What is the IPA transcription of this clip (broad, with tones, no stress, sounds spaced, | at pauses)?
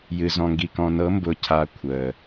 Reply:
j ɨ˨ z ɔ̃˨ ŋ ɡ i˨ k ɔ̃˨ n ɤ˨˦ m b ʊː˨ cʰ a˦ kʷʰ əː˨